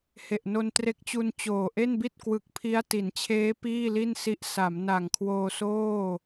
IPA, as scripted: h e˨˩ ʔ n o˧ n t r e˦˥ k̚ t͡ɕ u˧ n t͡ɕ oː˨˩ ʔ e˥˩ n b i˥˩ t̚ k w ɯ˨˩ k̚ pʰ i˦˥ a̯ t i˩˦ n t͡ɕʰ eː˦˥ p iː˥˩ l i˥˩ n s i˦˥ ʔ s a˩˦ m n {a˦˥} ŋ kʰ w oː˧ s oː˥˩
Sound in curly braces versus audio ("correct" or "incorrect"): incorrect